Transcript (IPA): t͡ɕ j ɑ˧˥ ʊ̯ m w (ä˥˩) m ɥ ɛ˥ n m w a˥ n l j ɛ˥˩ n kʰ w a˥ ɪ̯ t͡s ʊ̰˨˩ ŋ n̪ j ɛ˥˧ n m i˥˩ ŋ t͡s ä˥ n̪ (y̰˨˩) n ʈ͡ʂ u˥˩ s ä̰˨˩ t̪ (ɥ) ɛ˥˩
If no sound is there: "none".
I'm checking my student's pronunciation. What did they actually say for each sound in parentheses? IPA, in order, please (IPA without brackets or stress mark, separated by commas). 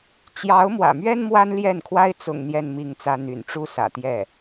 ä̰˨˩, y̰˨˩, j